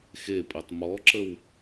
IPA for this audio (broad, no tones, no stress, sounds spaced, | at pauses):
x e pʼ i tˤ m ɔ ǁ ə w